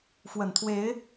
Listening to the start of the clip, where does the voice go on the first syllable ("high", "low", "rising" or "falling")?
low